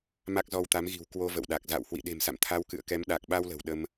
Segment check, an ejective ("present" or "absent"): absent